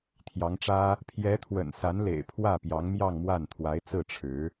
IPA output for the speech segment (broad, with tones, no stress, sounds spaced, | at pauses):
t̪ʰ j ɑ˧˥ ŋ ʈ͡ʂ ä˥ | pʰ j ɛ˧˥ t̪ʰ w ə̰˨˩ n s a˧˥ n l ḛ˨˩ ɪ̯ pʰ w ä˥˩ p j ɑ˧˥ ŋ m j ɑ˥˧ ŋ m w a˥˩ n t̪ʰ w a˧˥ ɪ̯ t͡s ɹ̩˥˩ ʈ͡ʂʰ ɻ̩˧˥